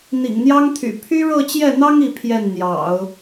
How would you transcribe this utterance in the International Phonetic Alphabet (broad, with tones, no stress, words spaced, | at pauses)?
n̪ḭ˨˩ŋn̪jɑ˥ŋt̪ʰy̰˨˩ pʰy˥ɻɤ˥˧t͡ɕjɛ˥˩n̪ɑ˥ŋ i˥˧pʰjɛ˥˩n n̪jɑ̰˨˩˦ʊ̯